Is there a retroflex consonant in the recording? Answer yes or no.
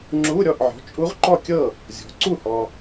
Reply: no